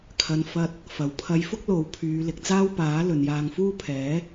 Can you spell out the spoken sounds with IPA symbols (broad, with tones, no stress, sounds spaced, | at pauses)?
kʰ ɐ˨ n f ɐ˧ t̚ | f ɐ˨ w pʰ ɐ˨˧ j f ʊ˥ k̚ l o˨˥ w pʰ yː˨˧ l ɪ˨ k̚ t͡s aː˥ w p aː˨˥ l ɵ˨ n j aː˧ ŋ f uː˥ pʰ ɛː˨˥